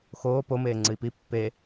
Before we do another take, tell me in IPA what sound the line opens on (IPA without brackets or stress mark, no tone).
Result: x